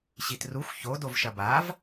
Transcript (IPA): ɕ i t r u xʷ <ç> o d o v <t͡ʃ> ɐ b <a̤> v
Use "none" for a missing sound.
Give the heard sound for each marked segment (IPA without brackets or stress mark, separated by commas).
ç, ʃ, a